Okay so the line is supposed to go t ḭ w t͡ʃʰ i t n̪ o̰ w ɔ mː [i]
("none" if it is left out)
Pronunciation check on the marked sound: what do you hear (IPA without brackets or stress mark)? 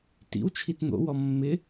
ɪ